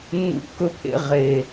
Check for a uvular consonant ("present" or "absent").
present